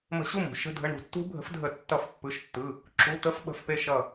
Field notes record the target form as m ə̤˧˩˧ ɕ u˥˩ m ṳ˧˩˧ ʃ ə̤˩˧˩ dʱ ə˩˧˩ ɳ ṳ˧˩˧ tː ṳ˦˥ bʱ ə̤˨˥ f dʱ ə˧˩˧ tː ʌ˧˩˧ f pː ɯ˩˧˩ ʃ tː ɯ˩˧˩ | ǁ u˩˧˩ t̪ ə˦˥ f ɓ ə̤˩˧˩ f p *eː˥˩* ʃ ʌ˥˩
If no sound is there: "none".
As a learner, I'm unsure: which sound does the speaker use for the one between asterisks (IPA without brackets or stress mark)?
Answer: e˥˩